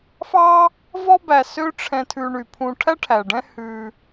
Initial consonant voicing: voiceless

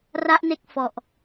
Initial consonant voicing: voiced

